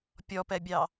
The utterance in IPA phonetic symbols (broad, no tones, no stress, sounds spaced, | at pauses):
pʲ ɔ p ɛ bʲ ɑ